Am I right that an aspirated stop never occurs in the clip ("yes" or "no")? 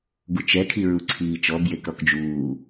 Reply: no